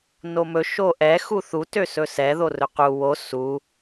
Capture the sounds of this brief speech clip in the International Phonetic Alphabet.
n o m ɵ ʃ o ʔ ɛ x u θ u t ø s ɵ s ɛ ð o r ɵ q u w o s u

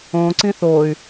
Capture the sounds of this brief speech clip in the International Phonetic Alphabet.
õ ǀ ĩ θ o y̯

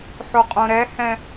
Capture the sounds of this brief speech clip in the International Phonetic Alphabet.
ħ o qʼ õ ɾ ɛ h ɛ̃

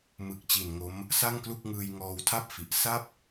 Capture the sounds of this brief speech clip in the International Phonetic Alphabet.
m ɯ˨˩ k̚ t͡ɕ i˨˩ n ŋ o˦˥ m | s a˥˩ ŋ k l u˥˩ k̚ ŋ ɯː˧ j ŋ ɔː˧ w tʰ a˥˩ p̚ f i˨˩ ʔ s a˥˩ p̚

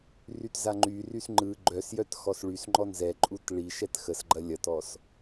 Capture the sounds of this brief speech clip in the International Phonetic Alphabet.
r y t z a ŋ͡ǃ y r y s ŋ͡ǃ ɯ ɡ͡ǃ œ s j œ t x ɔ s ɭ y s ŋ͡ǃ ɔ n z ɛ ǃʼ u t ɭ i ʃ ɛ t x ə s ɡ͡ǃ ɐ lʲ ɐ t ɔ s

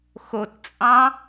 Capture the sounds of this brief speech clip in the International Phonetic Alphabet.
x o t t͡sʼ ɑ̃

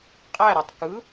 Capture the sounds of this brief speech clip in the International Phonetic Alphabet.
qʼ æ ɾ e tˤ k ɯ

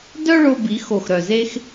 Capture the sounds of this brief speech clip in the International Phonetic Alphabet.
d œ˥ ɭ o˧ b i˩˧ x o˧˩ x ɾ œ˧˩ z e˥ x

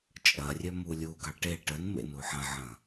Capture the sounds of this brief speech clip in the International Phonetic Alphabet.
t͡ʃʼ ɐ rʲ œ m u lʲ u ɡ ɑ ʈ e ʈ ə n m ḛ n u ħ ɐ̃ ʕ ɐ̃

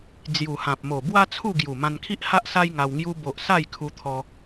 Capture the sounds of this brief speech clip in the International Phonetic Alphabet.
d͡z j u˨˩ h ã˨ p̚ m o˨˩ b w a˦ t͡sʰ u˥˧ ɡ j u˨˩ m ã˧ n kʰ i˦ ʔ h a˦ ʔ s a˦ j ŋ a˧ w ŋ j u˧ b o˨ ʔ s a˥˧ j kʰ u˧ t̪ʰ ɔ˧

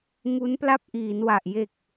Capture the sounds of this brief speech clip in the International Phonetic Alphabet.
ŋ u˦˥ n p l a˥˩ p̚ ʔ iː˩˦ n w a˨˩ ʔ j e˨˩ k̚

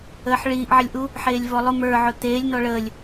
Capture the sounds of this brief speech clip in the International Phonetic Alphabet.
əː ħ ɭ iː ʔ ʕ ə lʲ ʔ u | ħ eː lʲ v ɔ lˠ ʊ m ə˞ ʕ ʊ t̪ eː lʲ n̪ ɔ ɭ əː lʲ

